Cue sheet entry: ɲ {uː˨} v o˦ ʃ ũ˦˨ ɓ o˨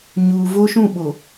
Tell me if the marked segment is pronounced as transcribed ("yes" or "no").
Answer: yes